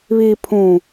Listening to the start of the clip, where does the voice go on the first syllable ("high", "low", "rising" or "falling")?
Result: low